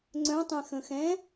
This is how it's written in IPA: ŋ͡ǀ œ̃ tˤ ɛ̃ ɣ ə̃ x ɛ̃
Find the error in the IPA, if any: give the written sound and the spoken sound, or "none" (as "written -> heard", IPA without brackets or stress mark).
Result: ɣ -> x